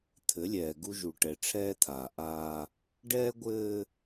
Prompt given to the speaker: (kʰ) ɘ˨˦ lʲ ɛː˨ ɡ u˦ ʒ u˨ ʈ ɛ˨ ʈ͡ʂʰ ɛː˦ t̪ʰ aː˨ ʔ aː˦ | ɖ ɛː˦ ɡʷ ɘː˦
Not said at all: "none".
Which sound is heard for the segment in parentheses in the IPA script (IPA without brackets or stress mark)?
t̪ʰ